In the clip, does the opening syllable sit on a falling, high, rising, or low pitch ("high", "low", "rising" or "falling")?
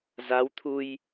rising